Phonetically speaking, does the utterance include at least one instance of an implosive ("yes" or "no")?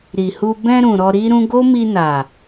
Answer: no